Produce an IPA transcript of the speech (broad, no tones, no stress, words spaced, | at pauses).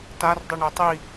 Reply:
tar dˤɨɳetˤi